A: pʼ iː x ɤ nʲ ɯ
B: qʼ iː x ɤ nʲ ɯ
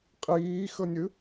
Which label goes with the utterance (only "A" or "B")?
B